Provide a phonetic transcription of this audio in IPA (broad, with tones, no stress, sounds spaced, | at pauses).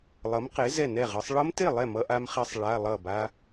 lˠ ʌ˨˥ m q e˨˥ z ɛ˥˨ n ɛ˥˨ ʁ ɯ˨˥ sˤ ɭ ʌ˦˥ m t e˥˨ lˠ ɛ˥˨ m ʌ˦˥ ʔ a˦˥ m χ ɛ˦˥ sˤ ɭ a˧˥˧ lˠ ʌ˥˨ b a˦˥